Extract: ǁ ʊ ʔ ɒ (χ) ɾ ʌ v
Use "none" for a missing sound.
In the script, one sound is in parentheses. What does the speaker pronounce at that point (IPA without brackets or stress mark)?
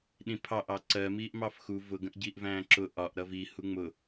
ʔ